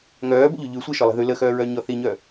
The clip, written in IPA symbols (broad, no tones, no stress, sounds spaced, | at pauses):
ŋ œː b ə̰ ʎ ʉ ʎ ʉ sʷ e ʃ ɔ lˠ e̤ ð ʉ l ə x œː ɹ œ ɲ ɔ θ i ɲ œ